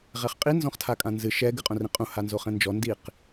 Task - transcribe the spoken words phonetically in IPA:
ʁ ɛ χ qʼ i n z ɔ̃ χ tʰ a kʼ ã n z ɨ ʃ ɛ ɡ ɨ qʼ õ r ĩ qʼ ũ h a n z o χ ɛ̃ n d͡ʒ ɔ n d i q

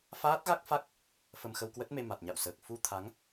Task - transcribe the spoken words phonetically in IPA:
f aː˦˥ t̚ ɣ a˦˥ k̚ f a˦˥ k̚ | f ə˧ m x ə˧ w k w ə˦˥ t̚ m e˧ m a˨˩ t̚ ɲ a̰˧˨ w s əː˨˩ k̚ f u˧ t̪ʰ a˨˦ ŋ

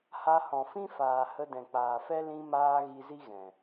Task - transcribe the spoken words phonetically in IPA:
h a˧ h ɔ̃˨ f ĩ˦ f aː˨ h ə˧ d ɛ̃˨ k͡p aː˨ f ɛ˦ l ĩ˧ m aː˧ ɣ i˧ z i˦ ɣ ɛ̃˨

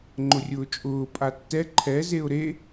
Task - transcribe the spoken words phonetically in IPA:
ŋ͡ǃ ʊ rʲ ʊː t͡ʃʼ ʊː pʼ a tː ɛ ǃʰ ɛ z e ʊ̯ ɾ e

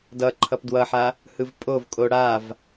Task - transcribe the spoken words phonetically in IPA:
d ʌ ǃʰ ʌ p d w ʌ ħ a | h ɯ v pʼ o v kʼ o ɽ a v

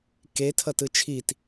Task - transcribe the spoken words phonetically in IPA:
k e tʰ ʌ t ɯ t͡ʃʰ i t

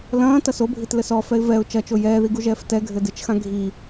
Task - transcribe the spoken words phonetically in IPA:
l ɐ̃ː t ɐ s o bʱ i t l ɘ s ɔ f ɛ ɪ̯ v ɛ ʊ̯ t͡ʃ ɐ t͡ʃ o j ɛː ð i ɡ u ʒ ɛː f t ɛ ɡʱ ɘ d ɨ t͡ʃ x ã ɡʱ i

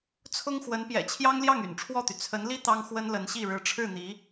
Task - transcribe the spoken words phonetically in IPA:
t͡sʰ ʊ˥ ŋ x w ə˧˥ n p j ɛ̰˨˩ t͡ɕʰ j ɑ˥ ŋ l j ɑ˥˩ ŋ y̰˨˩ n ʈ͡ʂʰ w ɔ˥˩ t̪ y˩ t͡sʰ ə˧˥ n l i˥ t̪ ɑ˥ ŋ x w ə˥ n l ə˧˥ n ɕ i˥˩ ɻ ɻ̩˧˥ ʈ͡ʂʰ ɻ̩˥˩ n̪ i˧˥

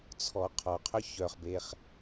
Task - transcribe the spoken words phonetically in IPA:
t͡sʰ ɔ qʰ ɔ qʰ œ ç œ χ b e χ

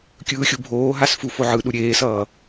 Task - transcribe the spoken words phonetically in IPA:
kʲ ɯː xʲ u bʱ oː ɦ a s f u f o ʕ ɯ ɗ u ɾʲ eː s ʌː

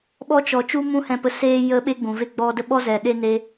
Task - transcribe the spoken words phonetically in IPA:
ɓ ɔ˦ t͡ʃ ɔ˨ t͡ʃ u˦ m ũ˦ h ɛ̃˧ p ə˧ s eː˧ j ə˦ ɓ e˦ ɡ͡b ũ˨ v e˦ ɡ͡b ɔ˦ d ə˦ ɓ ɔ˦ z ɛ˨ ɗ e˦ n e˦

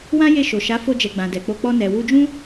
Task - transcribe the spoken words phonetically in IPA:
w ã˦ j e˦˨ ʃ o˨ ʃ a˨˦ f o˧ d͡ʒ ɛ˨ ɡ͡b ã˨ d ɛ˨ k͡p o˧ k͡p ɔ˧ n ɛ˨ w u˧ d͡ʒ ũ˦

